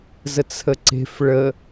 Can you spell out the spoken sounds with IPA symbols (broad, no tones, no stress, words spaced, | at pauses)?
zət͡sʰəǀe̤f ɭə